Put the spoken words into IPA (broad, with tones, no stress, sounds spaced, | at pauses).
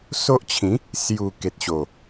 s o˦ ʔ t͡ɕʰ ĩ˨˦ | s j u˨˩ k e˨ t̚ ɕ o˨˩